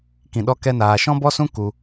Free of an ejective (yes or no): yes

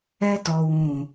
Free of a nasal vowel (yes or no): no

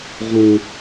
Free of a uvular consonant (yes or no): no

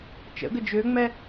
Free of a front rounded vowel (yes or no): no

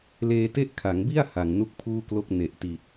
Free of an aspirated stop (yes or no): no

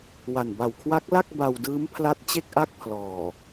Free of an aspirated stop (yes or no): no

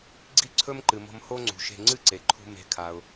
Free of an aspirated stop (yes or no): no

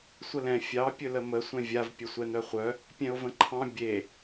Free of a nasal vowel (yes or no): no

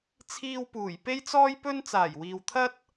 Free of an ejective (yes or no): yes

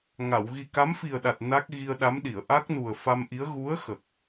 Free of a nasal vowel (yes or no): yes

